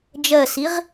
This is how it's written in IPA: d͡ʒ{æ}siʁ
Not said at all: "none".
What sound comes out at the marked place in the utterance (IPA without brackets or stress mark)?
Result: ɜ